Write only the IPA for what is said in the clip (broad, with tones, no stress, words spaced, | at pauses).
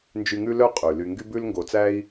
nd͡ʒy˨ŋʉ˦ lœ˥qʼʉ˩ ly˨ŋɡy˥ bʉ˦lŋɡo˨t͡sæ˥i̯